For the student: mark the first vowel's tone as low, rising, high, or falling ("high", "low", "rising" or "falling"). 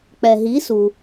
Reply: low